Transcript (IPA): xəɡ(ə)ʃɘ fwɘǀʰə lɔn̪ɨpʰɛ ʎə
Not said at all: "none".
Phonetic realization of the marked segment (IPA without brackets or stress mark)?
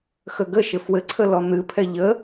ə